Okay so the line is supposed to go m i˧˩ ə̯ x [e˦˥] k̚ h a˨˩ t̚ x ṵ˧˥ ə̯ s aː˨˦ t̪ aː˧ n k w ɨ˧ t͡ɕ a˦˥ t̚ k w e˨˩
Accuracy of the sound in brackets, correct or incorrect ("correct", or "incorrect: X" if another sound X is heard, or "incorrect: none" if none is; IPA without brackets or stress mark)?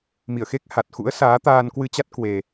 correct